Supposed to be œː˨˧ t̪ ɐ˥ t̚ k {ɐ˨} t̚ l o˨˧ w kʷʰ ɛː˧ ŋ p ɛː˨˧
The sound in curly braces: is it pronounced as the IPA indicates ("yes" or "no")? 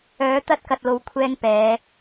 yes